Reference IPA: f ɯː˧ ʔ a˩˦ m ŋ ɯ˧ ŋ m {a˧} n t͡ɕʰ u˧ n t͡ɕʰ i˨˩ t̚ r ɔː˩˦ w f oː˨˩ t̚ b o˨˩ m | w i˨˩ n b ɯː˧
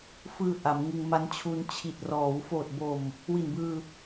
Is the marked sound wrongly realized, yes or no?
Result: yes